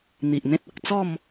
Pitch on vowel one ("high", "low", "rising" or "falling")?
low